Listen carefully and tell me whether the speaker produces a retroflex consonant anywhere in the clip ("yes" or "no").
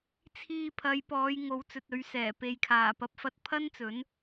no